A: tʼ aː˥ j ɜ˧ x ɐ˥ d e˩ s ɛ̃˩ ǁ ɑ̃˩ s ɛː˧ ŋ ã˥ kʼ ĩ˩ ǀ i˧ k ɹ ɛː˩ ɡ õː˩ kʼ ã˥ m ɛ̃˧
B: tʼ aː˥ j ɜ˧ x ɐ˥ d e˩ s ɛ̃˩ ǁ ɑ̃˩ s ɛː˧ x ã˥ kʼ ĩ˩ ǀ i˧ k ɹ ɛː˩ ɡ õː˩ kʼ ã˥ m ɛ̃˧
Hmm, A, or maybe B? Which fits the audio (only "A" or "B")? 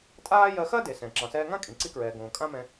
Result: A